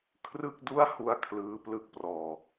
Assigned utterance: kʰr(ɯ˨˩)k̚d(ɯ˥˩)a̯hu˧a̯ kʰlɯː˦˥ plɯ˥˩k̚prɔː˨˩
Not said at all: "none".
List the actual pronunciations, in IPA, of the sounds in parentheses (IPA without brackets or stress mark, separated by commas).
ɯ˥˩, u˥˩